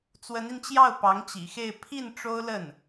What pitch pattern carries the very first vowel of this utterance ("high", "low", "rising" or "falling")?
rising